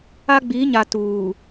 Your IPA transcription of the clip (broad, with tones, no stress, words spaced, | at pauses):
a˦ɡ͡bi˨˦ɲa˨ tuː˨